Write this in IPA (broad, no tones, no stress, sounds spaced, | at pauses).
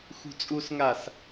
x ṳ t͡sʼ u s ŋ a s